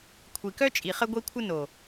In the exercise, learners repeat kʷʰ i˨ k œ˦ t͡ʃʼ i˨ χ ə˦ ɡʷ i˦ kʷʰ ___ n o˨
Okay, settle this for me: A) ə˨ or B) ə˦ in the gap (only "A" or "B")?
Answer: B